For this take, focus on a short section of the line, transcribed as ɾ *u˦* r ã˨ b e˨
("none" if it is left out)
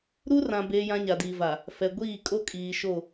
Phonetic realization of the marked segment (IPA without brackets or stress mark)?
u˦